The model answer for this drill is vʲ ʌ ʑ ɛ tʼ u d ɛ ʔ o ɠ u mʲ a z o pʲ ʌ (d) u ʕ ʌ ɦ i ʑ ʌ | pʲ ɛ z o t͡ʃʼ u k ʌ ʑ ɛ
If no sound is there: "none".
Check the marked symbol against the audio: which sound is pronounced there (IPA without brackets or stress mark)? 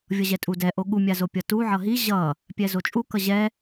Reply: t